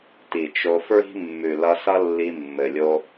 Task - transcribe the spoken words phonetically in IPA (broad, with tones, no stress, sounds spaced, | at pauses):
t i˨ t͡ʃ o˧ f ɹ i̤˦ mː ʉ˨ l ʌ˧ s ʌ˦ lː i˧ mː ɘ˨ lʲ o˧